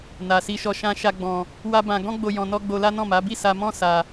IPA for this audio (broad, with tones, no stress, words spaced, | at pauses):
na˧si˦ʃɔ˦ ʃã˦ʃa˦ɡ͡bɔ̃˧ | wa˦bã˧ ɡɔ̃˦ɡ͡bo˧ jɔ̃˧nɔ˦ ɡ͡bo˧la˦nɔ̃˦˨ma˨˦ bi˦˨sa˧mɔ̃˦ sa˧